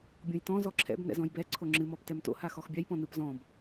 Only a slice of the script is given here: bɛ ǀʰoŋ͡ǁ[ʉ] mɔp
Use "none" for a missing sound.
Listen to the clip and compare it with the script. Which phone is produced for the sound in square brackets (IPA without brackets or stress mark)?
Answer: ɨ